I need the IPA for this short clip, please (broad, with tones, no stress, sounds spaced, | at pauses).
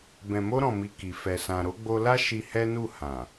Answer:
b ɛ̃˨ m o˧ ɾ ɔ̃˨ m i˨ k i˨ f ɛ˨ s ã˨ ɾ o˨˦ ɡ͡b o˧ l a˦ ʃ i˧ h ɛ˦ n u˦˨ h ã˨